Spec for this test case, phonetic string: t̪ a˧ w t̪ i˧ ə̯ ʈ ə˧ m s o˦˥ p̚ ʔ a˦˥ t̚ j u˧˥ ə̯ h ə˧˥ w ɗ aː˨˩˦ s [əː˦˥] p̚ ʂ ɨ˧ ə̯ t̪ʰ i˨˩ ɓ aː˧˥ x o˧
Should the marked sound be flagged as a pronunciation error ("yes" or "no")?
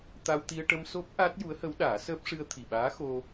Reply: no